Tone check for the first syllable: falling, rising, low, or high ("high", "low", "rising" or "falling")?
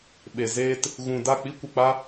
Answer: low